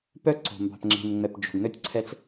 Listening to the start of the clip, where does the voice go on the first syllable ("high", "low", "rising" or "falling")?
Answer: falling